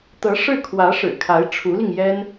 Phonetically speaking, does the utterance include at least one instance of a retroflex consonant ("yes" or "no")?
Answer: yes